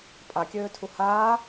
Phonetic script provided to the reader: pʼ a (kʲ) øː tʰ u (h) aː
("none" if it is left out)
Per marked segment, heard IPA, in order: kʲ, h

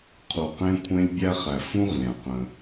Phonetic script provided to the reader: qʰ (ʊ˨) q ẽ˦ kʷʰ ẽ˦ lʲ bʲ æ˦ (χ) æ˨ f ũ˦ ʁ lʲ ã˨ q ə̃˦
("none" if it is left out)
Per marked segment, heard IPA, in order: u˨, χ

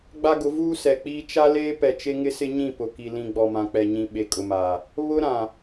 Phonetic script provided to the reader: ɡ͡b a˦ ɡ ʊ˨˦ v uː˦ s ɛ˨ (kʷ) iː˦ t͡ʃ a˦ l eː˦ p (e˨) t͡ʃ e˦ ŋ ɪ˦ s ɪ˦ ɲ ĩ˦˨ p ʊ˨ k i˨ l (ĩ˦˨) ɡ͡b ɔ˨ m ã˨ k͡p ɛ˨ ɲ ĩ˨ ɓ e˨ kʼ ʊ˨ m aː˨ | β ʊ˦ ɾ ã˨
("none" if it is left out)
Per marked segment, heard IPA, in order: k͡p, ɛ˨, ĩ˨

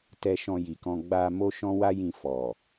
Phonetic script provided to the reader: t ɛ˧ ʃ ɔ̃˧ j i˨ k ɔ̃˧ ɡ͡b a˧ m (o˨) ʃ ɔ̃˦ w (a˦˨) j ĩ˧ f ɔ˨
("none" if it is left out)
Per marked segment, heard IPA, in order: o˦, a˦

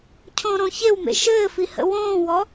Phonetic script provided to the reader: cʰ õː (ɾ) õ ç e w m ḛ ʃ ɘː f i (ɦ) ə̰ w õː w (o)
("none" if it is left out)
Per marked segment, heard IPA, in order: ɾ, h, ɔ

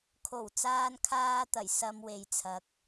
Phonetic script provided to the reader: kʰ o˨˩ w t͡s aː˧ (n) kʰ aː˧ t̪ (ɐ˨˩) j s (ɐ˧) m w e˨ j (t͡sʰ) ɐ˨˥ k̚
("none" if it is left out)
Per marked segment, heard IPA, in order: n, ɐ˨˩, ɐ˧, t͡sʰ

